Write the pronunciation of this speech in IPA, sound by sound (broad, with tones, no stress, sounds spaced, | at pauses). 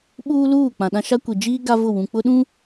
ɓ uː˦ l uː˦˨ k͡p ã˨ ɗ ã˦ ʃ a˦ kʷ i˨ d͡ʒ iː˦ ɡ a˦ v ʊ˦˨ w ũ˨ k͡p ʊ˦ ɗ ũ˦